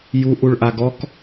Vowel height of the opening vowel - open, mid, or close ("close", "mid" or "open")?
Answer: close